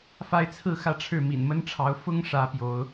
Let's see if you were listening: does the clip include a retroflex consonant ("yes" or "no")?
yes